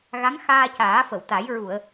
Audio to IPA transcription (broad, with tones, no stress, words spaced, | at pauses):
ɣa˧˥ŋxaː˧caː˨˩˦fə˨˩˨w t̪a˨˩˦jɹu˨˩˨ə̯